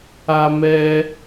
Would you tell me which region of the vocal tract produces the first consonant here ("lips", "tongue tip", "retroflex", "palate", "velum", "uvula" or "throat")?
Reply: lips